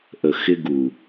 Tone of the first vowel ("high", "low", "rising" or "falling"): low